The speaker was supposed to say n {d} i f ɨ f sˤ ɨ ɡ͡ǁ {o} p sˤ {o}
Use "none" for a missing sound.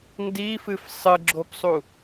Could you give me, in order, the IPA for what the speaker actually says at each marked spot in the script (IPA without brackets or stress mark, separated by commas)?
d, o, u